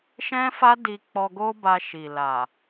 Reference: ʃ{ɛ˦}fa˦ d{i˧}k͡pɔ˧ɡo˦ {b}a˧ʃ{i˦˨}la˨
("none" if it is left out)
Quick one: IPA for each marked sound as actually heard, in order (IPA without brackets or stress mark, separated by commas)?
ɛ̃˦, i˧, b, i˨